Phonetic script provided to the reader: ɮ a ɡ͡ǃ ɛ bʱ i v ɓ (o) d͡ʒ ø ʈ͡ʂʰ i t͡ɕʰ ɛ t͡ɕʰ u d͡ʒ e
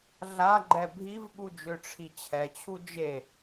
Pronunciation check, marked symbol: incorrect: u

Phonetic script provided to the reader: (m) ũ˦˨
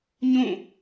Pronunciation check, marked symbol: incorrect: ɲ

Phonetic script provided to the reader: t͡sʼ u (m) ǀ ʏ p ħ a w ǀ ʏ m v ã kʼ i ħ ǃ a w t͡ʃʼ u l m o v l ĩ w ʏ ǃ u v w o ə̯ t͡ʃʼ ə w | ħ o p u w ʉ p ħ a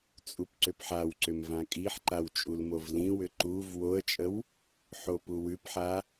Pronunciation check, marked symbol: incorrect: p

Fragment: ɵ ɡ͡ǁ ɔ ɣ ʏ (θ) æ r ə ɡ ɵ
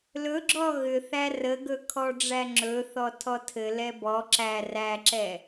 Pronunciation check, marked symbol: correct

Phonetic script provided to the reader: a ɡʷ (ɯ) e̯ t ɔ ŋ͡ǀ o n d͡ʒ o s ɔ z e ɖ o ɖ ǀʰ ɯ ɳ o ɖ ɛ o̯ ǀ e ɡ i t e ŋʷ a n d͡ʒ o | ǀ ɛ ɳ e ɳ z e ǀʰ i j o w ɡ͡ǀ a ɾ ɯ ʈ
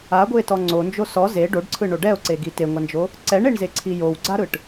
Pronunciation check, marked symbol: correct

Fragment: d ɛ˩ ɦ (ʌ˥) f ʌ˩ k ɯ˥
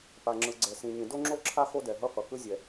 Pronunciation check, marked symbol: correct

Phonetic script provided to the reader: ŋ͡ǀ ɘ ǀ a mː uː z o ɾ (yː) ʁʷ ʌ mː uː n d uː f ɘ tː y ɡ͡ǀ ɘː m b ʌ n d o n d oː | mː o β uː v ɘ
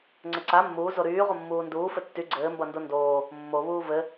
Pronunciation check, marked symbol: correct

